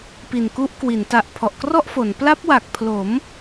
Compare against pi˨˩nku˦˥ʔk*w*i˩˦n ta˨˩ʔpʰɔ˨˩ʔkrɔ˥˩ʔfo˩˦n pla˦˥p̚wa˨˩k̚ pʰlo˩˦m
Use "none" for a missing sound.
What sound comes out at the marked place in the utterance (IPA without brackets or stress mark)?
w